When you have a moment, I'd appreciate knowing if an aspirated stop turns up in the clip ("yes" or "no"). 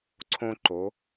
yes